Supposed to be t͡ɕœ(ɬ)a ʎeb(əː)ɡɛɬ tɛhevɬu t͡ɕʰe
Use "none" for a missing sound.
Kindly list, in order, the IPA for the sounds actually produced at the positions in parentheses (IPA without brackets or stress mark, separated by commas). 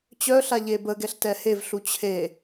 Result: ɬ, ə